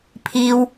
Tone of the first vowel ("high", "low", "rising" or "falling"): high